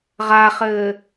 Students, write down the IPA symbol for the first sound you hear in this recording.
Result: ʁ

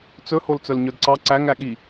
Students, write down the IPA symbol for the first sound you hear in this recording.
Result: t͡s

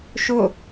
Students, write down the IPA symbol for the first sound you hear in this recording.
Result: ʃ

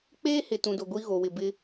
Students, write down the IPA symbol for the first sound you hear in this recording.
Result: k͡p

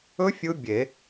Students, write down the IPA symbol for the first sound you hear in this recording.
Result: ɵ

